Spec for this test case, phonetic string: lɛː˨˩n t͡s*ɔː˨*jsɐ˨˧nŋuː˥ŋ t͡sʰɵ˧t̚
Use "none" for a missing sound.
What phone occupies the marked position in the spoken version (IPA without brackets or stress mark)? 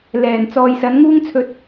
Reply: ɔː˨